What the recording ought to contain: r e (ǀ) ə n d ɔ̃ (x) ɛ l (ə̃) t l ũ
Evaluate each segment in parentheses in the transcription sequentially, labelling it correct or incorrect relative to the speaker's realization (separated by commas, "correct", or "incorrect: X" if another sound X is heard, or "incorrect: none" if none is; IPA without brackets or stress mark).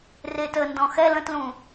incorrect: t, correct, correct